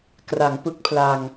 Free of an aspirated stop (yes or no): no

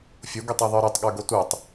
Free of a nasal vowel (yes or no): yes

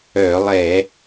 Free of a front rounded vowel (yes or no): no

